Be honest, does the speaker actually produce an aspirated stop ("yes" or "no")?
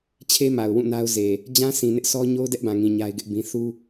yes